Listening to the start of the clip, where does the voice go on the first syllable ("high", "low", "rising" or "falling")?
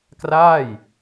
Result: falling